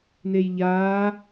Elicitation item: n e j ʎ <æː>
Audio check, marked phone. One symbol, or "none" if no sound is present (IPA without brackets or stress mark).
aː